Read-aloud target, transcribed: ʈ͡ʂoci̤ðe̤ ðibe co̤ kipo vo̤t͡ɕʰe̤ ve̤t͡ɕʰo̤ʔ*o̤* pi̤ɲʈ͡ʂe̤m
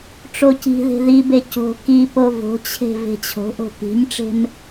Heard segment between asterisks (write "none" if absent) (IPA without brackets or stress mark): o̤